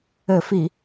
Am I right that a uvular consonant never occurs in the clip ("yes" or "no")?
yes